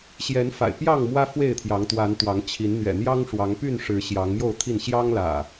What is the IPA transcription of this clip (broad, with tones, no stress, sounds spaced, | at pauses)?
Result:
ɕ j ɛ˨˦ n f a̰˨˩ ɪ̯ p j ɑ˥˨ ŋ m w ä˦ f w e˥˨ ɪ̯ t̪ʰ j ɑ˨˦ ŋ t̪ w a˨˦ n t̪ w ɑ˨˦ ŋ t͡ɕʰ i˨˦ n n̪ ɥ ɛ̰˨˩ n̪ j ɑ˦ ŋ ʂ w ɑ˨˦ ŋ p y˥˨ n ʂ ɻ̩˨˦ ɕ j ɑ˨˦ ŋ m j o˥˨ ʊ̯ t̪ʰ i˥˨ n ɕ j ɑ˦ ŋ l ä̰˨˩